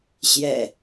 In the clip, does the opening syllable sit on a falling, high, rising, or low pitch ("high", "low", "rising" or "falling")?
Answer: low